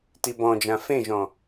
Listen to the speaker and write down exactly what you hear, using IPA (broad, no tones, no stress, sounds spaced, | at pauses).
t i b ɔ̃ d͡ʒ ã f ẽ ʒ ɔ̃